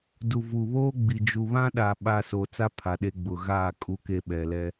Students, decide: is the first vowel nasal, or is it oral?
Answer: oral